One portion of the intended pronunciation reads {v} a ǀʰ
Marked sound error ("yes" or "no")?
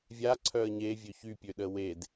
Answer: yes